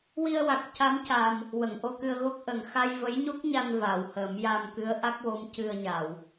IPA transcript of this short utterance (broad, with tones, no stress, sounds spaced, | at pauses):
w i˧ ə̯ w a˨˩ k̚ c a˧˥ m c a˨˩ m | w ə˨˩˨ ŋ ʔ o˧ k ɨ˧ ə̯ ɣ o˦˥ k̚ ʔ ə˨˩ ŋ x a˧ j v ə˧˥ j ɲ o˦˥ k̚ ɲ a˧ n v a˨˩˨ w h əː˨˩˦ m j a˧ m k ɨ˧˥ ə̯ ʔ a˦˥ k̚ w o˧˥ m c ɨ˧ ə̯ ɲ a˨˩˨ w